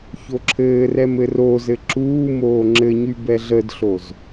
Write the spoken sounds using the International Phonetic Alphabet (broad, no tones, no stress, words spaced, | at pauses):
çoǁʰɘːrɛm ɘrozɘ ǁuːmoː ŋ͡ǁɘɲy bɛɮədɬoz